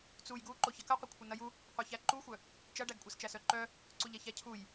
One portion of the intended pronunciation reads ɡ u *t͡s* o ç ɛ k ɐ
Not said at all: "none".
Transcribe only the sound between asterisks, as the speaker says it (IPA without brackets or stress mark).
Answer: ǃ